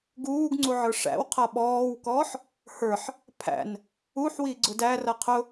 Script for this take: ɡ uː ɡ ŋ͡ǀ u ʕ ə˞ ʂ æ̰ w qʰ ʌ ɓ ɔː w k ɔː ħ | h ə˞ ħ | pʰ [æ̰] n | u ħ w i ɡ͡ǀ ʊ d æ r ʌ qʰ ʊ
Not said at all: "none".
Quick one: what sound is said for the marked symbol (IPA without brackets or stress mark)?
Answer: æ̰